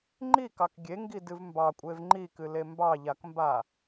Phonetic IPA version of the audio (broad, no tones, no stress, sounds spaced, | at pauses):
ŋ͡ǃ i k ɑ k ɡʲ e ŋ ɡ i d ɨ v m b ɑ kʷʼ e v ŋ͡ǃ i k ɨ l e m b ɑ ʎ a k m b a